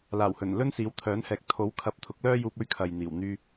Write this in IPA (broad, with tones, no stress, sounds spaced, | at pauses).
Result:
l aː˨˩ w h ɵ˨˩ n l ɵ˥ n s iː˨˥ w t̪ʰ œː˨˥ n h ɛː˨ k̚ t̪ʰ o˨˥ w kʰ ɐ˨˥ p̚ t̪ʰ ʊ˨˥ k̚ l œː˥ j uː˧ p̚ ɵ˥ ɥ kʰ ɐ˨ j n̪ iː˨˩ w n̪ yː˧